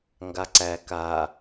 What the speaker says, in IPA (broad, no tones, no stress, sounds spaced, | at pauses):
ŋ ɡ a ǀ æ k a